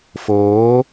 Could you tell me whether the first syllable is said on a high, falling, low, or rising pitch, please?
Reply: rising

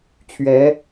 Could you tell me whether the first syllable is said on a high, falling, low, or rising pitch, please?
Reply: rising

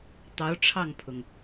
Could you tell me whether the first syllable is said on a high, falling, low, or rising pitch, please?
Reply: rising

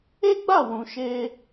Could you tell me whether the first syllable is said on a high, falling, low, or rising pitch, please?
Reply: high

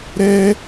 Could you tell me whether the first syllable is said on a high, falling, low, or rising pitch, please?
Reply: high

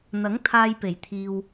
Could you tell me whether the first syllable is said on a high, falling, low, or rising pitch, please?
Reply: rising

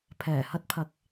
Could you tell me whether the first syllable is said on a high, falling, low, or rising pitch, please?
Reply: low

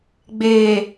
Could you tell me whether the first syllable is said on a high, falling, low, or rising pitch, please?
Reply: low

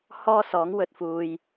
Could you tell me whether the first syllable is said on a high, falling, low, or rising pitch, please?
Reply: high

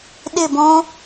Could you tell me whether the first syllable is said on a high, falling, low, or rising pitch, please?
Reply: falling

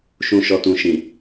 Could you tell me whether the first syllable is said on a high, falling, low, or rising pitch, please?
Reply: low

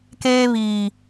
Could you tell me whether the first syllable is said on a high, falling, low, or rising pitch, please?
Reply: high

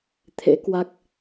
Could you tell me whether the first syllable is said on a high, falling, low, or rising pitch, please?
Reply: rising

